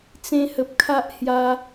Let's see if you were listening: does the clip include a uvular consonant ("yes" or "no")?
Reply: no